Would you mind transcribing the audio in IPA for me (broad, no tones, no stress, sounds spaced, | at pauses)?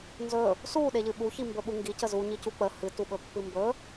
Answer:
n z ɵ | s u ɗ e ʎ ɨ ɓ u ç i m b ɵ ɓ u ŋ ɡ i c ə z u ɲ i c u k͡p ə h ɨ t u ɓ ɵ pː ɨ m b ɵ